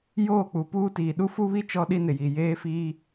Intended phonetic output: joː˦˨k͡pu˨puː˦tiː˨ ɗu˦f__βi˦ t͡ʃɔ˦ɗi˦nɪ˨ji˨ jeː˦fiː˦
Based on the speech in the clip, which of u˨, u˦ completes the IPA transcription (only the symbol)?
u˦